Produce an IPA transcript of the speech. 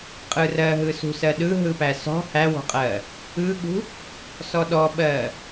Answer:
qʼɯrɜɦɯ sṳsɜɗɯ ɦɯpæsɔ̤ hæwɔ̤qʼɜ | ɯɠṳ | sɔɗɔɓɜ

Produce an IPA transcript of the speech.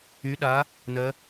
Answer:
y˩˧ɗa˩˧ | nɜ˩˧

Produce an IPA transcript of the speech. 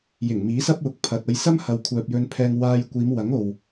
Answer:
jɪ˨˩ŋmiː˨˥sɐ˥p̚wʊ˨˥k̚ pʰɐ˨t̚ ɐ˧jsɐ˥mhɐ˨wkʷʰœː˨p̚ jɵ˧npʰɛː˧ŋ waː˧j kʷiː˨˧mwɐ˨˥ŋ o˨w

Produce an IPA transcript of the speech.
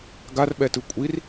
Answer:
ɡarɓɛtɯ kʷʼir

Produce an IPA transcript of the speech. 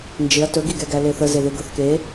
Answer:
nd͡ʒɪɐ̯ tɵɡiɡɛɡæ leθəzeðe ɡɤθke

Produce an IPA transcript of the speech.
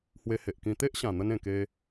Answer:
hwe˧he˨ʔkĩ˧ t̪e˦ʔɕã˨˩n̪ə˧n ẽ˨˩ke˧

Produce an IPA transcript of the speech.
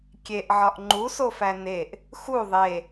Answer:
kʲeʔʕɒʔ ŋ͡ǃusofæ neʔ | xu ðˤe

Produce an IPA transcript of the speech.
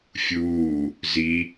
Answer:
fʲuː | zi

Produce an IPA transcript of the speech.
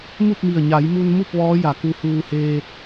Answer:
mu˥˨p̚mi˧˩ə̯ ɲa˩˧jmu˧nmu˥˨p̚ ʋɔː˧˥ ja˩˧ku˧huː˧heː˧t̚

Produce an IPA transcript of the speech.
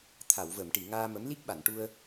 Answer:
t̪ʰa˨˩˨wvə˨˩˨mʈi˨˩˨ ŋaː˧mə˧˥m li˦˥k̚ɓa˨˩˨nʈu˧ə̯

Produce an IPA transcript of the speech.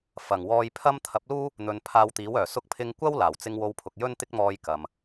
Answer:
fɐ˨˩ŋ wɔː˧jpʰɐ˥m t̪ʰɐ˨˥p̚luː˥ | n̪ɵ˧n pʰaː˧wt̪iː˨˥wœː˨˩sʊ˥k̚ pʰɪ˧ŋkʷɐ˥w laː˨˩wt͡sɪ˧ŋ wo˧wpʰʊ˨k̚jɵ˥n t̪ɪ˥k̚mɔː˧j kɐ˨m

